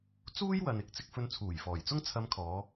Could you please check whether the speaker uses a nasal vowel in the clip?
no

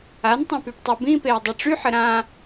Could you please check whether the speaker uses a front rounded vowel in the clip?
yes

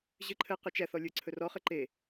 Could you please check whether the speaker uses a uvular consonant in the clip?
yes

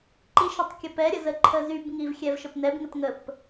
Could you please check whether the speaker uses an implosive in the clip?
no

